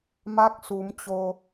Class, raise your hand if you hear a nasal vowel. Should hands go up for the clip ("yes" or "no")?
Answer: no